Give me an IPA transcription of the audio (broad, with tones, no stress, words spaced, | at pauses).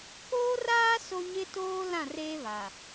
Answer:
koː˦raː˦ so˦ɲɪ˦toː˦ lã˦˨reː˦βa˨